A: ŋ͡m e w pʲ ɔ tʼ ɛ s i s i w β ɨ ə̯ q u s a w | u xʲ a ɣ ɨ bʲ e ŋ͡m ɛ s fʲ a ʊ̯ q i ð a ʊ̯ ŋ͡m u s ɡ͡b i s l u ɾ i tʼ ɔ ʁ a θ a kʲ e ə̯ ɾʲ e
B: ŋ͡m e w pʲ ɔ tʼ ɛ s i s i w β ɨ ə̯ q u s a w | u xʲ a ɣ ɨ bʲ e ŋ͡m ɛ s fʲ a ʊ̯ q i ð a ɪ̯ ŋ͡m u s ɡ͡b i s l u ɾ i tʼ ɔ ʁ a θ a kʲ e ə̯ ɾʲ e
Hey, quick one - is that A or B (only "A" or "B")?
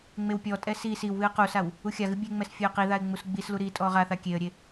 B